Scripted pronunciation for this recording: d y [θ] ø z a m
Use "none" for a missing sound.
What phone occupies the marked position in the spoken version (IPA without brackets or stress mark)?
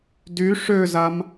ʂ